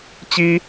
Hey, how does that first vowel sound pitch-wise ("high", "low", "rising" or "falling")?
high